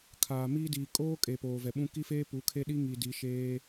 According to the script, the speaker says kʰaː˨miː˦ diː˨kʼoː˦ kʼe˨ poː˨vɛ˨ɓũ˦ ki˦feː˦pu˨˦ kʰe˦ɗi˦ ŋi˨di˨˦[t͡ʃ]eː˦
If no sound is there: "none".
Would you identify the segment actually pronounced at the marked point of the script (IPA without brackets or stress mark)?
ʃ